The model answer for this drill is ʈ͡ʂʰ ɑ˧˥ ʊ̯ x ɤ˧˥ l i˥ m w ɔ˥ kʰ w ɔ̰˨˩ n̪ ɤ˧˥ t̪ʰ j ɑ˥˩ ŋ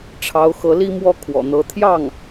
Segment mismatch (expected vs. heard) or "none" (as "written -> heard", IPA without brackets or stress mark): none